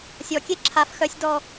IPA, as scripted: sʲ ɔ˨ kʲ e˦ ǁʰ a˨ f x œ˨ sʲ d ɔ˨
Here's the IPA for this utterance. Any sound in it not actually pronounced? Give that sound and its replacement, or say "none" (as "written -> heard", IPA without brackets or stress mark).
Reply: none